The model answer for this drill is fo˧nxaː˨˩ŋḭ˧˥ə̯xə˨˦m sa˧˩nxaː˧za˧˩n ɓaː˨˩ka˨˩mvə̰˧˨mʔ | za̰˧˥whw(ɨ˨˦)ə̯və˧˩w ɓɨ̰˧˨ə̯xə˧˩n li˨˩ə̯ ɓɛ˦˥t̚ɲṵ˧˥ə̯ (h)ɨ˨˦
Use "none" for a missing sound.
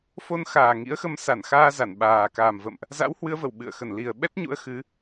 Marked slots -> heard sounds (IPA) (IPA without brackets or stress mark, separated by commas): ɨ˨˦, x